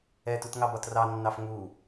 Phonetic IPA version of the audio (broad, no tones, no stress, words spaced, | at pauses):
ɛtutŋɑbɒt rɑnːɑf ŋu